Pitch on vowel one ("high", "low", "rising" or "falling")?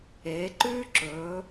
rising